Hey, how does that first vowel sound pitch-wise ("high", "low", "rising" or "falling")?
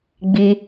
high